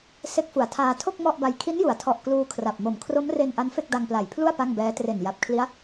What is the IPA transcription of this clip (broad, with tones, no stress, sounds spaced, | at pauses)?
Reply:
s e˦˥ k̚ f u˩˦ a̯ tʰ aː˧ tʰ o˥˩ k̚ m ɔ˥˩ ʔ b a˧ j kʰ i˦˥ n j u˩˦ a̯ tʰ ɔ˨˩ ʔ k l uː˧ kʰ r a˨˩ p̚ m o˨˩ m kʰ r o˦˥ m r e˧ n ʔ a˦˥ n f e˥˩ k̚ d a˧ ŋ p l a˨˩ j pʰ l u˥˩ a̯ p a˥˩ ŋ b ɛː˦˥ t r e˨˩ n j a˨˩ p̚ kʰ l i˦˥ a̯